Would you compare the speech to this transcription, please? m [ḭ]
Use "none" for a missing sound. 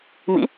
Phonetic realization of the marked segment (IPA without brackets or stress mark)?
ḭ